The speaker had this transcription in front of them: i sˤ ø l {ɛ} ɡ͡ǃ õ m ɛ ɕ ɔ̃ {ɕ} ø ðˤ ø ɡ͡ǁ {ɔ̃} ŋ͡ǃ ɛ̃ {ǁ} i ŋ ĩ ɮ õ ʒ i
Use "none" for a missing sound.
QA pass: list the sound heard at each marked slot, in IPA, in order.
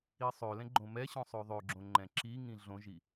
ɛ̃, sˤ, õ, ǁ

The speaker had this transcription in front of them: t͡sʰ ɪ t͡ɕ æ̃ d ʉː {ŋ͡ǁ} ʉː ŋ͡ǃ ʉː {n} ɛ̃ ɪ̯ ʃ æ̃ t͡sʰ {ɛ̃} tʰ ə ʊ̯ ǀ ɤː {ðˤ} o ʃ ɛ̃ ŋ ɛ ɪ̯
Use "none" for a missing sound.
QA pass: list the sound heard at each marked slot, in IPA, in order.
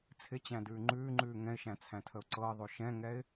ŋ͡ǃ, ŋ, æ̃, ðˤ

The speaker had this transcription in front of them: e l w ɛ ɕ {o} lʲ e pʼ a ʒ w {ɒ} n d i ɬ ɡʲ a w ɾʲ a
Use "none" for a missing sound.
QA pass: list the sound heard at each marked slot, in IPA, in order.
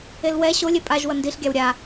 o, ʌ

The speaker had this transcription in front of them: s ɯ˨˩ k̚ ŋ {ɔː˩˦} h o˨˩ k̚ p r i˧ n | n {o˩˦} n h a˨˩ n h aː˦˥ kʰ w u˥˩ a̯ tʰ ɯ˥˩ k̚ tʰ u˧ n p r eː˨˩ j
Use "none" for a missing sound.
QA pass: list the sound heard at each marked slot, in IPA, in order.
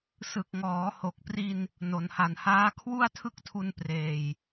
ɔː˩˦, o˩˦

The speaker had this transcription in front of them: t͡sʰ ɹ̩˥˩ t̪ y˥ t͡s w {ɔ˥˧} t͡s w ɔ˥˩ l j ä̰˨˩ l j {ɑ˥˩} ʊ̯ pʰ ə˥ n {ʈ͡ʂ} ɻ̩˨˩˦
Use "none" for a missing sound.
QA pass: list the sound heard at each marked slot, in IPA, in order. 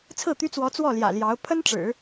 ɔ˧˥, ɑ˧˥, ʈ͡ʂ

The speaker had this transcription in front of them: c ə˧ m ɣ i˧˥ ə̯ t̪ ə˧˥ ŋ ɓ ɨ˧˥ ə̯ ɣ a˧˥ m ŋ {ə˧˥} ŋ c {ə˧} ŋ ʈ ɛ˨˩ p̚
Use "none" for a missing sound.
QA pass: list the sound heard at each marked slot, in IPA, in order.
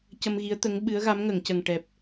ə˨˩˨, ə˨˩

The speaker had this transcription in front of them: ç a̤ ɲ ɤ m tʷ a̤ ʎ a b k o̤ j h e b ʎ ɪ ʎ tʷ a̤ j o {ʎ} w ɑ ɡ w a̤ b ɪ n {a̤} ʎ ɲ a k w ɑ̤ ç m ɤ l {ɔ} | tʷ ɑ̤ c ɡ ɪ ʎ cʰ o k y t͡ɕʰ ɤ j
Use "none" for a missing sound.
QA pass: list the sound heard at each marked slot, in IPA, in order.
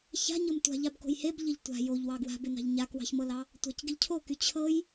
ʎ, ɑ̤, ɑ

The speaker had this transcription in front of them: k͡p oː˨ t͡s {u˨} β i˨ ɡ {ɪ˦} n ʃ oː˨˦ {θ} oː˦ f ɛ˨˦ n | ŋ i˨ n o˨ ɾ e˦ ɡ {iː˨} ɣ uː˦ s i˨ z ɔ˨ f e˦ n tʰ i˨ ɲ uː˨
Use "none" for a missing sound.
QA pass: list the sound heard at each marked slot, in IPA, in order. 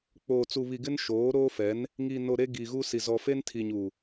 u˨, ɪ˦, ɾ, iː˨

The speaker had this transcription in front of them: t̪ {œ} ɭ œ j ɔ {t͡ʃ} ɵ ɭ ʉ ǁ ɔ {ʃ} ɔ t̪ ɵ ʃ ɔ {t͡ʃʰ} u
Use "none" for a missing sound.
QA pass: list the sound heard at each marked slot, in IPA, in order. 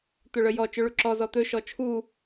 ɵ, t͡ʃ, z, t͡ʃʰ

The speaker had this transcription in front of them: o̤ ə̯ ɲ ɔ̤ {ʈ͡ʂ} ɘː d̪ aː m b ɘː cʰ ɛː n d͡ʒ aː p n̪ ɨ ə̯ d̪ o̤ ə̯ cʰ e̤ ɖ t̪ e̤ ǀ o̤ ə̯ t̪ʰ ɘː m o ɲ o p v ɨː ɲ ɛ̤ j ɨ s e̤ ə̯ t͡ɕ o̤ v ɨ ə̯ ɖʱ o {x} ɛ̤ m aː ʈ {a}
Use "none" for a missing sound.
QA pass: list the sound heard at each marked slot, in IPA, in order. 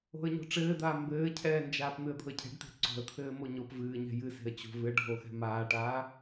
ʈ͡ʂ, x, aː

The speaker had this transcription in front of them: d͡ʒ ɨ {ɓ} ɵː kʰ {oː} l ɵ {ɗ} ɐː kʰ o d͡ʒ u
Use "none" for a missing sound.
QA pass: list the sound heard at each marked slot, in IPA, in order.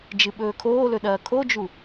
ɓ, oː, ɗ

